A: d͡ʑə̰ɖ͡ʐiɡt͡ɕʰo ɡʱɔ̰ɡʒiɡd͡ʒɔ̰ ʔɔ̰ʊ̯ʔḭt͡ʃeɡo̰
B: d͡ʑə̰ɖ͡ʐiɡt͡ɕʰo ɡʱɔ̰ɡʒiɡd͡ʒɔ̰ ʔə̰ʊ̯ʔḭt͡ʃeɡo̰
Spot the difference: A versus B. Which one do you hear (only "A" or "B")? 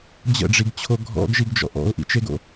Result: A